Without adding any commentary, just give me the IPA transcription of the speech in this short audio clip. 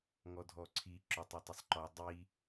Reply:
ŋ ɔ dʱ ɔ ǀʰ i ǁ ʊ tˤ i tˤ ʊ sˤ ǃ ɔ dˤ i

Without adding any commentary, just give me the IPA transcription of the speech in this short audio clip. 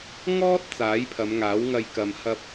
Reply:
ŋ ɔː˥ t̚ t͡s aː˨˥ j pʰ ɐ˨˧ m ŋ aː˨˥ w ŋ ɐ˧ j k ɐ˨ m h ɐ˧ p̚

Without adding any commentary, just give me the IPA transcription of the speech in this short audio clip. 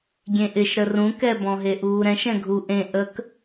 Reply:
ɡʲ ẽ ʔ ɪ ʃ ɾ ə r ũ k ɛ b ɔ̃ ɦ e ʔ uː ɾ ɛ̃ ʃ ɛ̃ ɡʱ u ʔ ẽ ʔ ə k

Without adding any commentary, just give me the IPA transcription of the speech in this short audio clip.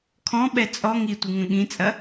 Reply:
kʰ ɔ̃ ɓ ɛ t͡sʼ ɔ ŋ i tʷ ɨ ŋ ə̃ ɠ ĩ t͡sʼ ɐ

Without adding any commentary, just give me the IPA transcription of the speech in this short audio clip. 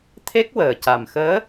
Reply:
t̪ʰ e˦˥ k̚ w əː˨˩ c a˨˩ m x əː˧˥

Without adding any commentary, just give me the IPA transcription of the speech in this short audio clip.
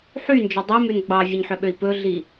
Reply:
ħ y n d͡ʒ œ dˤ i m ʉ n ɡ͡b ɑ vʲ e ɲ ħ œ ɓ ø i̯ p ɵ ɮ i

